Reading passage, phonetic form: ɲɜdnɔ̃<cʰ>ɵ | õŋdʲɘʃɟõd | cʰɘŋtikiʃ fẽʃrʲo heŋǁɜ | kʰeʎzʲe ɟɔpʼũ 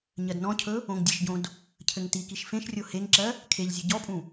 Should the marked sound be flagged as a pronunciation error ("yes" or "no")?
no